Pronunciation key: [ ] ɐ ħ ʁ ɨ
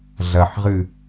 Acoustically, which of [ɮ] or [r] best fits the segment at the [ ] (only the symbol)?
ɮ